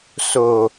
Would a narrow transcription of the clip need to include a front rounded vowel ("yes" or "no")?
no